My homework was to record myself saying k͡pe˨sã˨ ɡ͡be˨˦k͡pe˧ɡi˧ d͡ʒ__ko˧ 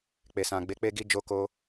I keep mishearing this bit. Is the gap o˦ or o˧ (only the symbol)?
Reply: o˧